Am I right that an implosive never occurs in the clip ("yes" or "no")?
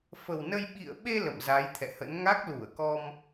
no